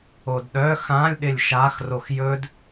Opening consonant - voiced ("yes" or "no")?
yes